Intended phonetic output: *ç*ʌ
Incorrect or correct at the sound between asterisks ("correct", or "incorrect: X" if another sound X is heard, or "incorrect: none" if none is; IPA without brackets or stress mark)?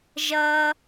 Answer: incorrect: ʒ